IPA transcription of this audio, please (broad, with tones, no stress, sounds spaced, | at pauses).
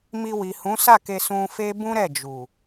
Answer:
m i˧ w i˨ h ũ˨˦ s a˦˨ k e˧ s ũ˧ f e˦ b ũ˦ ɾ ɛ˦˨ d͡ʒ u˨